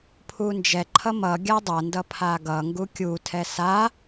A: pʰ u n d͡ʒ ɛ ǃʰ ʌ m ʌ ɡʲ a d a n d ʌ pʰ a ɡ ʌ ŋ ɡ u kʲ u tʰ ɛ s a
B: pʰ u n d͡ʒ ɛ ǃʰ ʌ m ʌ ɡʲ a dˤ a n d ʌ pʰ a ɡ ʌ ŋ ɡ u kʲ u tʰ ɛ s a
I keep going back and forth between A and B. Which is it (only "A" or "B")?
B